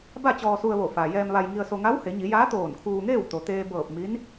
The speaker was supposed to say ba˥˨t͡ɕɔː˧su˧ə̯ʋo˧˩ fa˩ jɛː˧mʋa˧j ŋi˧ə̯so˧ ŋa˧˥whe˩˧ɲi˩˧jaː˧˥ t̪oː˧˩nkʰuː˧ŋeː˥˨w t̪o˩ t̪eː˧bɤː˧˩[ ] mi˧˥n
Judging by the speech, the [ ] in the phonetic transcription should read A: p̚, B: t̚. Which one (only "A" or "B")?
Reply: A